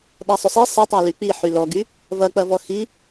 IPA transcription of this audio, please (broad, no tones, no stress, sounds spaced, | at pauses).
ɗ a sˤ ʏ sˤ i sˤ ɐ tˤ a l y k͡p i ħ y l ɔ ɡ y | v ɐ k͡p ɐ v ɔ x i